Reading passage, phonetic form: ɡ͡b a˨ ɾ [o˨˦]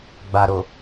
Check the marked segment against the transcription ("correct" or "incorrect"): incorrect